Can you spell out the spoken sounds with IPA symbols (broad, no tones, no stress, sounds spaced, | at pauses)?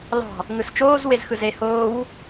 l ɑ̤ | ŋ ɯ s t͡ʃ oː z w e z x ɯ z e h oː w